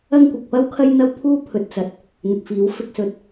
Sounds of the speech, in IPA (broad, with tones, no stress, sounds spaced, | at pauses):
ɐ˥ ŋ kʷ ɪ˨ k̚ p ɐ˥ w kʰ ɐ˥ j n̪ ɐ˥ w pʰ uː˥ pʰ ɵ˨˥ t̚ t͡s ɐ˨ t̚ | n̪ ɪ˨ k̚ f iː˨˥ w f ɪ˧ k̚ s ɵ˨˥ t̚